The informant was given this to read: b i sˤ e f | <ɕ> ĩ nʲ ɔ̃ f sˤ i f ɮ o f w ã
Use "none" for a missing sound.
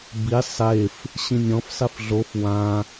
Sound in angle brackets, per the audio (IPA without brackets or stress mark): ɕ